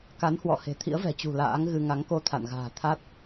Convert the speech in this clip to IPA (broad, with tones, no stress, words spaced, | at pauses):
ka˨˦nhwɔ̰˧˨ he̤˨˩ t̪ʰḭ˧˥ə̯vɛ̤˨˩t͡ɕṳ˨˩ la̰ː˧˥ŋɣɨ˧ ŋa˨˦ŋko˧ t̪ʰa̰˧˨nɣa̤ː˨˩ t̪ʰa˦˥t̚